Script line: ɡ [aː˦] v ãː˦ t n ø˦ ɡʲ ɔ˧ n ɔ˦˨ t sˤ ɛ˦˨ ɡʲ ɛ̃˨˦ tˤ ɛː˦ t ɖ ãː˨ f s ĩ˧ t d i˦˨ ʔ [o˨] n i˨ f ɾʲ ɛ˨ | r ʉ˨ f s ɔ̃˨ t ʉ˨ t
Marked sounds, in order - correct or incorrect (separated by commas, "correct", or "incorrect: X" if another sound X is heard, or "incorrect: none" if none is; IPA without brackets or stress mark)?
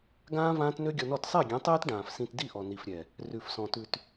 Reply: incorrect: ãː˦, incorrect: ɔ˨